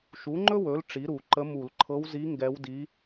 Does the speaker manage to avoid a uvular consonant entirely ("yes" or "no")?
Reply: yes